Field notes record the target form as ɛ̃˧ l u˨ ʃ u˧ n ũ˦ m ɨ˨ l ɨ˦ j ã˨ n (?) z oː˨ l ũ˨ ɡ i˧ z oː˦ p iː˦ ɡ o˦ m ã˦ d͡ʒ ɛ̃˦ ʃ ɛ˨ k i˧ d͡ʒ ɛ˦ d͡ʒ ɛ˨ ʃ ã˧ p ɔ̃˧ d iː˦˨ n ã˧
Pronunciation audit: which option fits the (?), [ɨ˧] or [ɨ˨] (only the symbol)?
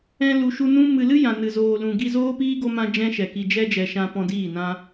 ɨ˨